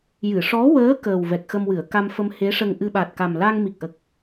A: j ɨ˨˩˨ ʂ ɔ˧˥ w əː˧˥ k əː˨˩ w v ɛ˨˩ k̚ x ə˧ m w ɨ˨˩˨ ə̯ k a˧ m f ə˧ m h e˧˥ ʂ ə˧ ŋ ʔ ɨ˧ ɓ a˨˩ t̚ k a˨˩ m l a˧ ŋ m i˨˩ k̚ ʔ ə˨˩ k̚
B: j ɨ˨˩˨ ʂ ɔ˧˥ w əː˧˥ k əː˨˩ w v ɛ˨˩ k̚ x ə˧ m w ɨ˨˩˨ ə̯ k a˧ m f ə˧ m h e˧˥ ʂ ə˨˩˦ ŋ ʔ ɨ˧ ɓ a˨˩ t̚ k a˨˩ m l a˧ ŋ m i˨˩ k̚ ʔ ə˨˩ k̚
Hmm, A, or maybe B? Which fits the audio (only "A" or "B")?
A